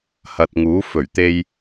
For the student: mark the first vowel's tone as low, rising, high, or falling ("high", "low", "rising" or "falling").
low